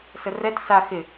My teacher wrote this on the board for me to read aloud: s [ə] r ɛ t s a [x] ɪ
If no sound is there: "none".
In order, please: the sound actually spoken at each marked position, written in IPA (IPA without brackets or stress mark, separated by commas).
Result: ə, x